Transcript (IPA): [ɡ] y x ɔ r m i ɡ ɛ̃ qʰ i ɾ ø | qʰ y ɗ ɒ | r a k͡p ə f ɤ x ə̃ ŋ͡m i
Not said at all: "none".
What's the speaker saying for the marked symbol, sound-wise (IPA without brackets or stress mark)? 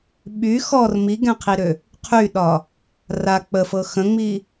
ɓ